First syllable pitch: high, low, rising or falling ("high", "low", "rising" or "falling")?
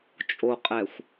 low